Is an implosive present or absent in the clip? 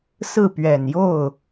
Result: absent